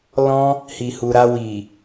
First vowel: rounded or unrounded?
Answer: rounded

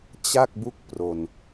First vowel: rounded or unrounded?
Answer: unrounded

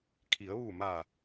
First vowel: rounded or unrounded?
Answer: unrounded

